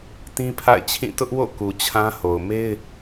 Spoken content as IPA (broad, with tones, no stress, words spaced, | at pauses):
tĩ˦pʰa̰˦˨ɪ̯t͡ɕʰĩ˦˨ tʊ˦ʔwo̰˦˨ ku˨t͡ɕʰã˦ho˨ʊ̯ me˦ɪ̯